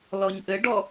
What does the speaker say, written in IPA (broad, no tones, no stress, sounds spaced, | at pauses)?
l ɔ ɲ ʔ ɘ ɖ ɔ